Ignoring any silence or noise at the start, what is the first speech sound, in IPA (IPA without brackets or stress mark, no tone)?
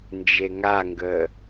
n